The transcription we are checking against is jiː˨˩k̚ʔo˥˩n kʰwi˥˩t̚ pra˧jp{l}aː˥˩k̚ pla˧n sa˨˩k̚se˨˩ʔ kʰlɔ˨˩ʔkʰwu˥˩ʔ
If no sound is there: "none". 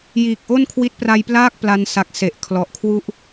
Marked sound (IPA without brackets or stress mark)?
l